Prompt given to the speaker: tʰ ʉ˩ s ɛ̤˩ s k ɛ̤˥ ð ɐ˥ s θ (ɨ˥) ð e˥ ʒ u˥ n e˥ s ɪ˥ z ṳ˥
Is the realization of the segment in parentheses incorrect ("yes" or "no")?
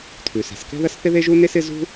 yes